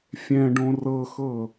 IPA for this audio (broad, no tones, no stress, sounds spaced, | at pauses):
fʲ ɛ̃ ɖ õ r ɤ x ɤ